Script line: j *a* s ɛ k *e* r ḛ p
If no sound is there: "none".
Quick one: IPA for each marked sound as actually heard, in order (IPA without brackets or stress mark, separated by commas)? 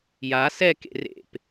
a, ḛ